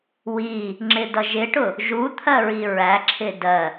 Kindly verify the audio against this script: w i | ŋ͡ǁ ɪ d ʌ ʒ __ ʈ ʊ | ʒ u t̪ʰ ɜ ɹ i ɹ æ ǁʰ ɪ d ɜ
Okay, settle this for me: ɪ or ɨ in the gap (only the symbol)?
ɪ